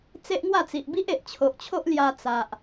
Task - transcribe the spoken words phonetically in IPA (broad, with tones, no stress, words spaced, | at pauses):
t͡se˦ʔŋwa˥˧t͡si˨ʔ bi˦ʔe˨ʔt͡ɕʰo˨ʔt͡ɕʰo˦ʔ lja˧t͡sa˨ʔ